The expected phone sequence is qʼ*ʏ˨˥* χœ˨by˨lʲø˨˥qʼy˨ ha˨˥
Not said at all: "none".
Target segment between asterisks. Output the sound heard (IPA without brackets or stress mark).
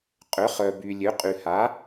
ʏ˨˥